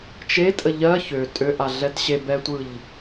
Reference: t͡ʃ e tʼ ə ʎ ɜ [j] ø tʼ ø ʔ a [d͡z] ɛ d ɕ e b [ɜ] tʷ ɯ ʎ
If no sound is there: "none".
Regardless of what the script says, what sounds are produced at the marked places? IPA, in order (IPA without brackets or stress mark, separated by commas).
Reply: ç, ɮ, ɛ